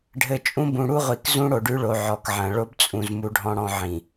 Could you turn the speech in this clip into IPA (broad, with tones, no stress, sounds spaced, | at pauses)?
ɖʱ ɘ˨ t͡ʃʼ ũ˦ b ũ˨ ɽ u˦ ʁʷ i˨ k z ũ˦ ɽ o˨ ɖ ʉ˦ ɭ o˨ ʕ ɔ˨ k ʕ ɐ̃˨ ɭ o˦ b t͡sʼ ũ˨ z m u˦ ɖʱ ɔ̃˦ ɽ ɔ̃˦ ʕ ĩ˨